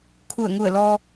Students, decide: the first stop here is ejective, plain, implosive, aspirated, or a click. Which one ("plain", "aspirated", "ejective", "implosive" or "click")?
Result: aspirated